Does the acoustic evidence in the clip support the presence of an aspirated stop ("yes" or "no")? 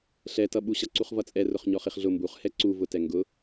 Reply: no